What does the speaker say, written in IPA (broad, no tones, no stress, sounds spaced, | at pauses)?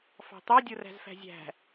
f ɑ̤ t̪ ɑ dʲ o r æ̤ z f æ̤ zʲ æ̤